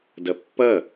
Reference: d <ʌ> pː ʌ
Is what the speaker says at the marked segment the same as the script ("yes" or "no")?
yes